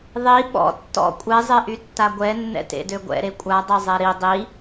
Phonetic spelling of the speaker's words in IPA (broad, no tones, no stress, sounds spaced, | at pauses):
ðˤ i ɓ ɔ̰ tː ɔ̰ kʷʼ ɛ zˤ e ʔ y tː a ɡʷ ɛ nː ɛ̰ t ḛ d ø ɡʷ ɛ̰ ɾ e kʷʼ a dˤ ɛ zˤ ɛ ɾ i dˤ i